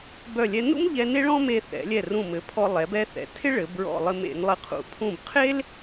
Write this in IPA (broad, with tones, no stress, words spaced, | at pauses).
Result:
bœ˧˩lʲɛ˧ nṵ˥mʎɛ˧ ne˥ɭɔ̃˥me˧ θɛ̰˩˧lʲɛ˧˩ rũ˧˩mɘ˩˧pʰɔ˧ lˠɛ˩˧bɛ˧θɛ̰˩˧ tʰɪ˥ɭɘ˩˧ bɹɔ̰˧˩ lˠɘ˧mḛ˩˧nlˠɘ˧˩qʰṵ˧˩ pʰũ˧˩bqʰe˥l